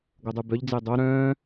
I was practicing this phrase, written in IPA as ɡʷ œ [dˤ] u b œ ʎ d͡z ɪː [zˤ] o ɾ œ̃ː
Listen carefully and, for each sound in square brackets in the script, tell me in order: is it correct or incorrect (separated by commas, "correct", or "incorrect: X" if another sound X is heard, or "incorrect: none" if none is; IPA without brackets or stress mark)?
correct, incorrect: dˤ